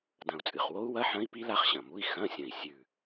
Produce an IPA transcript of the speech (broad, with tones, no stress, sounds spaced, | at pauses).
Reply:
d ɐ̃˨˩ u̯ t͡sʼ ɨ˨˩ χ w o˦˥ u̯ w ɐ˧˥˧ ħ ɐ̃˦˥ i̯ p i˦˥ l a˦˥ χ ɕ ɐ̃˨˩ m u˧˥˧ i̯ x ɐ̃˧˥˧ sʲ ɐ̃˨˩ i̯ sʲ ʉ˨˩